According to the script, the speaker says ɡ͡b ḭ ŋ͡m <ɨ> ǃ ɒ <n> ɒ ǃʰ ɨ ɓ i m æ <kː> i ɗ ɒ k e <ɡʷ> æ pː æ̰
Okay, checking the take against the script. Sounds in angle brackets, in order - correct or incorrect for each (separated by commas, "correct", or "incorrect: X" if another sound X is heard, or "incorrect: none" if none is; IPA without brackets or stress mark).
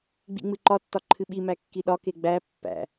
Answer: correct, incorrect: tː, correct, incorrect: ɡ͡b